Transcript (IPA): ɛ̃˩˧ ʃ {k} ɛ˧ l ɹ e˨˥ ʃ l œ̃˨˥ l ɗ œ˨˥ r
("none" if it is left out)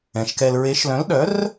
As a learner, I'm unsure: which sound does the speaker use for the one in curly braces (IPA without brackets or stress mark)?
k